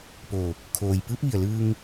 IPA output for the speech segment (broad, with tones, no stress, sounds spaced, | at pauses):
p o˧˩ | kʰ oː˩ j p ɯː˧˥ p̚ ʋ i˧˩ ə̯ l ɯː˧ ŋ